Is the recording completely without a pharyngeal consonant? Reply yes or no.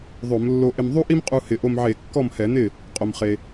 no